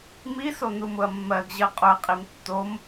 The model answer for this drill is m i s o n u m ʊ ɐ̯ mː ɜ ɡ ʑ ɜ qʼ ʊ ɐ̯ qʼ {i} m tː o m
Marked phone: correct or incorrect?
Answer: correct